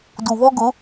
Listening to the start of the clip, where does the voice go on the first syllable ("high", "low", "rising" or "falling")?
low